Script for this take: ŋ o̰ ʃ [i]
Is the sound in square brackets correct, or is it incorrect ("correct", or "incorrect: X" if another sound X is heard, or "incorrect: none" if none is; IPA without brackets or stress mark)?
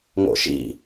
incorrect: ḭ